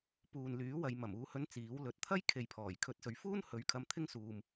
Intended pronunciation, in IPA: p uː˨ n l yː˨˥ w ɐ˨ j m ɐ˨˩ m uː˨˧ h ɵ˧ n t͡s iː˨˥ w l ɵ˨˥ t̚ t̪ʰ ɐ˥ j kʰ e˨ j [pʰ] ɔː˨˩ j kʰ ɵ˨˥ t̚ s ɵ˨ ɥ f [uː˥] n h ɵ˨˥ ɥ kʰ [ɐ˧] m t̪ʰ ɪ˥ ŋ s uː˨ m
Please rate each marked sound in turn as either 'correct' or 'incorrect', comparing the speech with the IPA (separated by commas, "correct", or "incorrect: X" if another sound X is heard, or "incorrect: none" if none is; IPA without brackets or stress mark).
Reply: correct, correct, correct